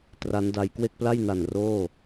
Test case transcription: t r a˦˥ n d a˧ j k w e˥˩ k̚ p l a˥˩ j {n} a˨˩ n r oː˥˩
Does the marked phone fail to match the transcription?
no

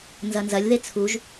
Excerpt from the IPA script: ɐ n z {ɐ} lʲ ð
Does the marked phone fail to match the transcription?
no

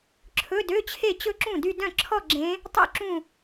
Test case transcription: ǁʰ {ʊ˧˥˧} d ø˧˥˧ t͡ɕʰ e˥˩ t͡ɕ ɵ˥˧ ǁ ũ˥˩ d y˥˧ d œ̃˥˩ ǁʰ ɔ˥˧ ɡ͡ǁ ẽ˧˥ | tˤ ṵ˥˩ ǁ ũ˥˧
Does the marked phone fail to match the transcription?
yes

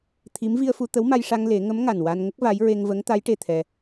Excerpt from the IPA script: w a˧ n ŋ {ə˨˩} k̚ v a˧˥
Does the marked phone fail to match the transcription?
yes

